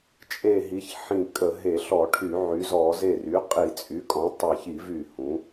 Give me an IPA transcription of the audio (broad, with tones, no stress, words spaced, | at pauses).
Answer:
t͡ʃʼe˧˩ ɦi˩˥çħĩ˧˩kʼə˧˩˧ ɦe˧˩˧ɬɔ˧˩˧ʈʰy˧˩˧ ʕy˩˥zɔ˧˩˧ ze˧˩ry˩˥ qʼi˧˩˧t͡sʼy˩˥kʼɔ̃˩˥ tˤe˧˩çi˧˩˧v y˧˩hũ˩˥